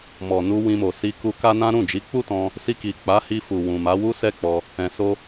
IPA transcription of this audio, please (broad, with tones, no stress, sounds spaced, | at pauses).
m ɔ˨ n u˧ w ĩ˧ m o˨ s i˧ k u˧ k a˦ n ã˦ ɾ ũ˦˨ d͡ʒ i˨˦ k͡p u˦ t ɔ̃˧ | s i˧ k i˨ k͡p a˨˦ h i˧ f u˨ w ũ˨ m a˨˦ w u˦ s ɛ˦ k͡p ɔ˧ | ɛ̃˨ s o˧